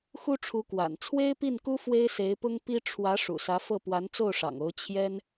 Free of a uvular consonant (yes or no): yes